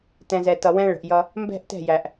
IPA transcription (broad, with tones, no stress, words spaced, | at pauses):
tɛ̃˨zɛ˨tʌ˨ wɛ̃˦ɭə̤˨ʔjʌ˦ | mbɛ̤˦˨ʔtɛ̤˦˨jæ˨ʔ